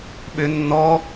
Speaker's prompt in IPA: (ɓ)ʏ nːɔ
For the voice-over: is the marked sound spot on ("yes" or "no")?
yes